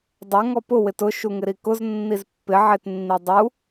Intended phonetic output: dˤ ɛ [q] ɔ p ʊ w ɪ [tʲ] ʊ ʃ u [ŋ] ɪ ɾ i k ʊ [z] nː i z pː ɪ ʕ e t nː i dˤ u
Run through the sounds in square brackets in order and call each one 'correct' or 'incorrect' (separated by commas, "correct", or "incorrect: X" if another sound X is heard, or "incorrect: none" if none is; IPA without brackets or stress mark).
incorrect: ŋ, incorrect: t, correct, correct